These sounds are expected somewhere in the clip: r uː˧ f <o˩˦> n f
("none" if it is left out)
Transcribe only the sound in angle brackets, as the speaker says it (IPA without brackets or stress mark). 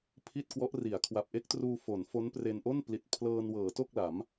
o˩˦